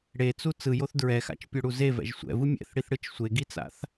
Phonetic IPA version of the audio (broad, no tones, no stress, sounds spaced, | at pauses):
ɽ e t͡s u t͡s ɯ j o θ d ɹ ɛ x a̰ t͡ʃ pʲ o ɽ u z e v ɛ̰ ʒ sʷ ɛ̰ v ɯ mʲ ɛ̰ θ ɽ i θ ɽ ɯ t͡ʃ sʷ e ɡ i t͡s a̰ θ